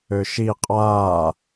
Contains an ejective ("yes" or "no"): yes